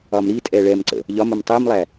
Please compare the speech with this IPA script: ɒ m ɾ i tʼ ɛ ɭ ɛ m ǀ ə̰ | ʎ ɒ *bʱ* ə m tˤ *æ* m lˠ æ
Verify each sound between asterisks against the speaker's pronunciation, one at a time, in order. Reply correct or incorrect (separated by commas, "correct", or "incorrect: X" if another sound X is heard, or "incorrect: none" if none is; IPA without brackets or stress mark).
incorrect: m, incorrect: ɜ